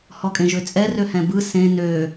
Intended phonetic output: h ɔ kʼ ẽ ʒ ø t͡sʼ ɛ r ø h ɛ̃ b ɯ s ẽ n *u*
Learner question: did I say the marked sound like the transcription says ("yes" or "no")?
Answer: no